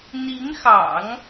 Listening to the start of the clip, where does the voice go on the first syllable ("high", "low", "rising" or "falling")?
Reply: rising